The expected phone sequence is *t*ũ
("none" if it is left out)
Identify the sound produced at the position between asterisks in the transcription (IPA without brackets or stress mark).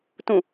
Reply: t